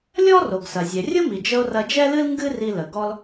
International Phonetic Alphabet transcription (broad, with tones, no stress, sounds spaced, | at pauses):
lʲ ɔ˥ r o˩ ɡ s ɐ˩ zʲ ɛ˩ rʲ ʊ˥ m i˩ d͡ʒ ə˧ o̯ r ɐ˧ d͡ʒ ɛ˥ l ɨ˥ l ŋ ɡ ɨ˥ r i˧ l ə˩ ɡ ɔ˧ l